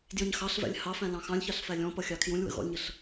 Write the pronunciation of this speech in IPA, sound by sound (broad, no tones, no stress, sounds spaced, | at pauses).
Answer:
d j ə̃ ɲ x ɑ ɬ v æ̰ lʲ h ɑ f æ̃ l ɑ̃ x ɑ̃ lʲ ç ɑ ɬ f æ lʲ ɔ̃ p ʌ xʲ ɑ kʰ j ũ lʲ w ə̰ ɣ ɔ̰ lʲ ɲ ə ɬ